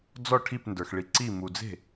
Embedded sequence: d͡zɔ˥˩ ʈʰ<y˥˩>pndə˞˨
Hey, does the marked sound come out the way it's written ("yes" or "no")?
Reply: no